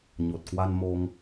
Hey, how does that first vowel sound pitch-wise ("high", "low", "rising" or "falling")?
low